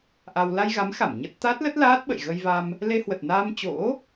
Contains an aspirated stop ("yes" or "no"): no